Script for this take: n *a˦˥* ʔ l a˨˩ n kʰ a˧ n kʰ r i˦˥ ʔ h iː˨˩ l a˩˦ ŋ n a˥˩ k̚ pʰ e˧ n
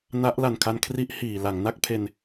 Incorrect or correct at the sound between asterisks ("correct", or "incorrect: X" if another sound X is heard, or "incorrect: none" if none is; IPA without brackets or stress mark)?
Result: correct